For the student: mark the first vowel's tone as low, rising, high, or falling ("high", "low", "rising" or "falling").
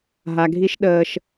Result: low